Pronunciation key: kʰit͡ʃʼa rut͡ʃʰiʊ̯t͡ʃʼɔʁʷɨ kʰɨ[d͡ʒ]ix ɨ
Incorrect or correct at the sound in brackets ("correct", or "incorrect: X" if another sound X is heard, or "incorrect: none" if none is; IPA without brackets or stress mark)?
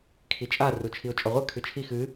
incorrect: t͡ʃʰ